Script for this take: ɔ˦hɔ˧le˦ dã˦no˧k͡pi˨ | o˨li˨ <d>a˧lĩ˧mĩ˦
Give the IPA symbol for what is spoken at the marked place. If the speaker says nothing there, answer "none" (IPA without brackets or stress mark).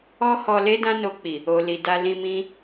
d